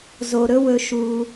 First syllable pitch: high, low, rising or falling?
low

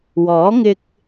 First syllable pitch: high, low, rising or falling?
rising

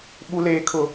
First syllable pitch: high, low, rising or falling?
high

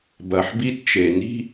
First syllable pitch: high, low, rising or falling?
low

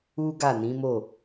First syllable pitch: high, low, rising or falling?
high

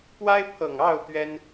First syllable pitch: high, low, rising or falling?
high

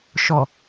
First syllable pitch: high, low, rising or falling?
low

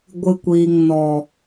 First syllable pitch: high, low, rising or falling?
low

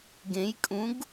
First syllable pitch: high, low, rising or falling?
rising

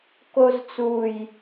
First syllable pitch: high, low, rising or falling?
high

